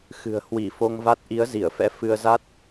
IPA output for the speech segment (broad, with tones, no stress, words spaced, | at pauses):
xɨ̤˨˩ə̯ hwi˧˩fo˧ŋva˦˥t̚ ʔi˨˦ə̯zi˧˩ə̯fɛ̰˧˥ fɨ˧ə̯za˦˥t̚